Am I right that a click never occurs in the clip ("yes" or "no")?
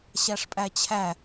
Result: yes